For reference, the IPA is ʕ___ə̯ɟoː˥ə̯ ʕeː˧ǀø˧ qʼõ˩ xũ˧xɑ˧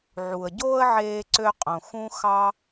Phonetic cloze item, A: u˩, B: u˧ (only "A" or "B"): A